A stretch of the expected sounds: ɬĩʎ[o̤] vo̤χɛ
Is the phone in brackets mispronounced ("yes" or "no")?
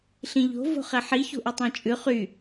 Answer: no